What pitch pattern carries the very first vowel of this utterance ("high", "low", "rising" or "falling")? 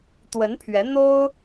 rising